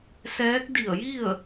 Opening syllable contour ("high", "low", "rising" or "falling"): rising